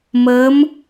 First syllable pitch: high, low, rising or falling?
rising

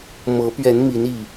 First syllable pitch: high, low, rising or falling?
rising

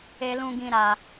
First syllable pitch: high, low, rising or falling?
low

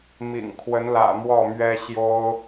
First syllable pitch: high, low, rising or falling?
low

